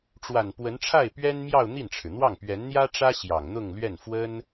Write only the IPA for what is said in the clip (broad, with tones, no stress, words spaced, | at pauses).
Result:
ʈ͡ʂwa˨˩npwə˧˥n ʈ͡ʂʰa˥˩ɪ̯pɥɛ˥nmjɑ˥˧ʊ̯ n̪i˥˩nʈ͡ʂʰɻ̩˩n̪wɑ˥˩ŋ pɥɛ˧˥nn̪jä˥ʈ͡ʂä˥ ɕjɑ˨˩ŋn̪ʊ˥˧ŋlɥɛ˥˩n fwə˥n